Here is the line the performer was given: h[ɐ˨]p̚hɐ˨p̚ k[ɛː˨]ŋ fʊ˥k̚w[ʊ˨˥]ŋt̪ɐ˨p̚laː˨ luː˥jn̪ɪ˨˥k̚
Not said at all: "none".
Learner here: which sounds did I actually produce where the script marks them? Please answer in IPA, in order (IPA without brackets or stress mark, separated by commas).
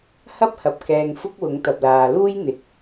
ɐ˥, ɛː˨, ʊ˨˥